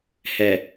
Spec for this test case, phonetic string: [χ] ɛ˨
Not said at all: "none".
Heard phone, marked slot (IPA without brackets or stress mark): h